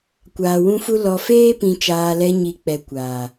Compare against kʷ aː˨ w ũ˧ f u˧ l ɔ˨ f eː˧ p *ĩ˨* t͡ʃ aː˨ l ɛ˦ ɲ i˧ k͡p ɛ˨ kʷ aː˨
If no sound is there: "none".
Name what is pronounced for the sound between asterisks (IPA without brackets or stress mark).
ĩ˨